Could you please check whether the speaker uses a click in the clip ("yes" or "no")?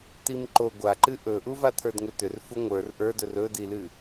yes